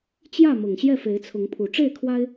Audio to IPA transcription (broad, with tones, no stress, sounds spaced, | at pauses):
t͡ɕ j ä˥˨ m ʊ˨˩ ŋ ɕ j ɛ˥˨ f e˨˦ ɪ̯ t͡sʰ ʊ˨˦ ŋ pʰ u˨˩ ʈ͡ʂ e˥˨ ɪ̯ kʰ w a˦ ɪ̯